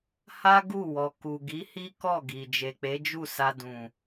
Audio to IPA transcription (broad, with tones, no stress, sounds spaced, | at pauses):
h a˦ ɡ u˦˨ w ɔ˨ k u˨ ɡ i˨˦ h i˦ k ɔ˦˨ ɡ i˨ d͡ʒ e˨ k͡p e˨˦ d͡ʒ u˦˨ s a˧ d ũ˨